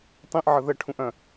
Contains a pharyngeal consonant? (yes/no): yes